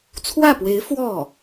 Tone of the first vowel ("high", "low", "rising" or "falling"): falling